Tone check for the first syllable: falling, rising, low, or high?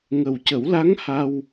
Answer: low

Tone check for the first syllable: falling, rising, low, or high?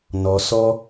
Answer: low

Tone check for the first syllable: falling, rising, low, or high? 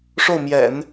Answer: falling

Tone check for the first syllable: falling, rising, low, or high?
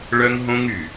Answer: high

